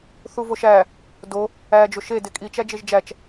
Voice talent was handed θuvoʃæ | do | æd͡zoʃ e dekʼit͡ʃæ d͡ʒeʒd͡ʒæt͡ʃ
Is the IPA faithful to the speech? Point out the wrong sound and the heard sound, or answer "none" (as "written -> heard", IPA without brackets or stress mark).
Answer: d͡z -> d͡ʒ